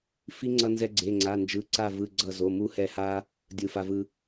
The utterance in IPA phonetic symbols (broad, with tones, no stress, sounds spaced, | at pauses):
f i˧ ŋ͡ǀ ʌ˧ n z ɛ˧ ɡ͡ǀ e˩˧˩ ŋ͡ǀ a˩˧˩ n d͡ʒ ɯ˩˧˩ ǀ a˧˩ v ɯ˩˧˩ ɡ͡ǀ ʌ˧˩ z o˩˧˩ m u˧ h ɛ˧˩ h a˧ | dʲ ɯ˧˩ f a˧ v ɯ˧